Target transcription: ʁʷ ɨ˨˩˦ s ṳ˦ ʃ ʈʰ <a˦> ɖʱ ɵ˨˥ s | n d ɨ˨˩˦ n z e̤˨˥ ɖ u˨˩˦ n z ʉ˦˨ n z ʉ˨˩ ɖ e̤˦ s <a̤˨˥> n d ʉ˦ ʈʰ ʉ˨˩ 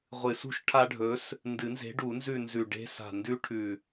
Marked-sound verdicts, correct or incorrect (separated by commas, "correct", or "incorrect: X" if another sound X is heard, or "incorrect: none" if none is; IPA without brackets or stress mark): correct, incorrect: a̤˨˩